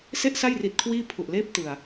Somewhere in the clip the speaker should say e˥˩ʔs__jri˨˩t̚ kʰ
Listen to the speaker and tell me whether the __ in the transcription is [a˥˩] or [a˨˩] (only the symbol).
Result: a˥˩